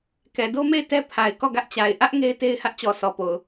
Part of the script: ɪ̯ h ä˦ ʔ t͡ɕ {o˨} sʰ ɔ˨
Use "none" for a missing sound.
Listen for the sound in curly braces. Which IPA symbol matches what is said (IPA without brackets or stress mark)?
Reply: ɔ˨